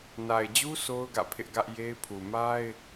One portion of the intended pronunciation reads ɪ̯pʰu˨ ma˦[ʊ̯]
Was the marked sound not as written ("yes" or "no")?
yes